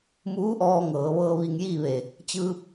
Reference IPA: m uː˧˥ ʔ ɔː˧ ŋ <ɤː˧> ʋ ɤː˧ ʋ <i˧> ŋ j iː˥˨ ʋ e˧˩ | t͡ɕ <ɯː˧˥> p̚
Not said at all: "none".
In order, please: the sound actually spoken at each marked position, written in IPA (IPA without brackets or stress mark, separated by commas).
ɤː˩˧, i˧, ɯː˧